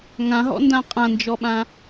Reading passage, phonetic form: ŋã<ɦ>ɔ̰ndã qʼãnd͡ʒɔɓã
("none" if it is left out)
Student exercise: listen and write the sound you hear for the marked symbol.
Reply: ɦ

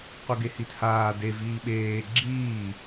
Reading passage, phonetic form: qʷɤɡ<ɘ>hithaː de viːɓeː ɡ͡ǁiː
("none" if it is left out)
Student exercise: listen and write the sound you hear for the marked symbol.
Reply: e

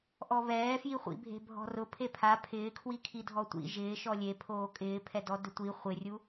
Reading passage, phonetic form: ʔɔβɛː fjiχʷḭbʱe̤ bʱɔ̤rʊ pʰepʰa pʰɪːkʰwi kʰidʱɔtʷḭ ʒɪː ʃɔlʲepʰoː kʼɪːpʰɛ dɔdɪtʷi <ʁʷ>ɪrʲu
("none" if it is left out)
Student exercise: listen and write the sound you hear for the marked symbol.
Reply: χʷ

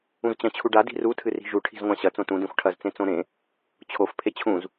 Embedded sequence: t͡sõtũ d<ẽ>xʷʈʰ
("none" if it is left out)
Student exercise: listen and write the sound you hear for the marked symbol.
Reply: ẽ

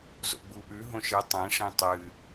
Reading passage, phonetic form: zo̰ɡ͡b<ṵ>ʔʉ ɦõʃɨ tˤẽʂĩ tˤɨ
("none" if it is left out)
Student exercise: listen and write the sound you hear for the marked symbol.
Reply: u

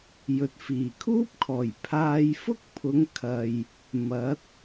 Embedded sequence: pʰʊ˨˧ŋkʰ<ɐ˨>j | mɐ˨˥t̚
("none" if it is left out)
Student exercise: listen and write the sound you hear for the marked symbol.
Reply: ɐ˨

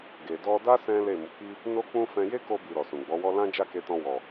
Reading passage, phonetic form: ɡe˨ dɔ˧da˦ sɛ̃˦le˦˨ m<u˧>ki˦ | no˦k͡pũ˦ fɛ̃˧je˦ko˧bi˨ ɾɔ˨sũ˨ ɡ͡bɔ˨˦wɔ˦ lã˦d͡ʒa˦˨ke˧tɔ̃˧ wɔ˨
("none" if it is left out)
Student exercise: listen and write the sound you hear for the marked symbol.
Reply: u˨˦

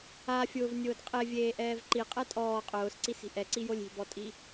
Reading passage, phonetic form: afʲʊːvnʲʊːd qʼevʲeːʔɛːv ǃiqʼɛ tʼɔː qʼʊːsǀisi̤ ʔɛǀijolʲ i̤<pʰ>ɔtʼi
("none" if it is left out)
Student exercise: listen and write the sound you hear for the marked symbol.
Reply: b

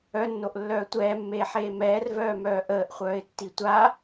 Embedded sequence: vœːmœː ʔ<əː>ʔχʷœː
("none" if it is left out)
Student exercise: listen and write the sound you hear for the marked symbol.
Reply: əː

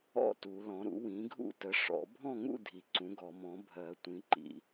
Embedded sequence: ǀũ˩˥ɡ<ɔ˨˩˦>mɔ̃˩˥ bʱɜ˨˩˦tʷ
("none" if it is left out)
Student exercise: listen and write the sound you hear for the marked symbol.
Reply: ɔ˨˩˦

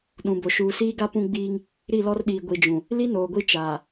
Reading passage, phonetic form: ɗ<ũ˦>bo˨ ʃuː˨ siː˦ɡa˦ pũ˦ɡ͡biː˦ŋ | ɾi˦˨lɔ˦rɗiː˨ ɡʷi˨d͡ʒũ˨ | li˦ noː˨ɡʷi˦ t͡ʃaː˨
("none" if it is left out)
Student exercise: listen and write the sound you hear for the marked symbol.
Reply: ũ˨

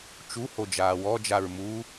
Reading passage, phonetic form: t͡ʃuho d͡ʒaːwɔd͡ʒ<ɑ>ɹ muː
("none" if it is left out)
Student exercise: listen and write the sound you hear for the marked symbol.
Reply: a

